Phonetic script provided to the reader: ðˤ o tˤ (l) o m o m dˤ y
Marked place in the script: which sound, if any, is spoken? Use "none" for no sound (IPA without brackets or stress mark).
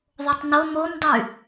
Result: n